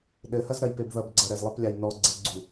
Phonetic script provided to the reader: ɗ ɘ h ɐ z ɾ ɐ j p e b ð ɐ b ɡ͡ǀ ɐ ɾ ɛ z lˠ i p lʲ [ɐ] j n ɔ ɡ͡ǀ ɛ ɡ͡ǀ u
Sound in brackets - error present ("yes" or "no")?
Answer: yes